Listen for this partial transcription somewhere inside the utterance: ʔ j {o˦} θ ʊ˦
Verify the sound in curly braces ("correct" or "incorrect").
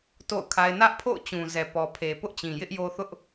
correct